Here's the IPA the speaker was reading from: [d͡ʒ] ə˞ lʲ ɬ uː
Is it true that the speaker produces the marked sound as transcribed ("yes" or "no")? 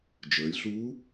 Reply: yes